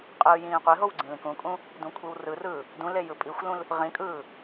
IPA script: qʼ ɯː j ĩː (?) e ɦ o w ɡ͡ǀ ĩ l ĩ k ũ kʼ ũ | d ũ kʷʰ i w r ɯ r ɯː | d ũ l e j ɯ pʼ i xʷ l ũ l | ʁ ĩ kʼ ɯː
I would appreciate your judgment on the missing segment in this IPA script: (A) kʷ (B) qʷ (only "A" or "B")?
B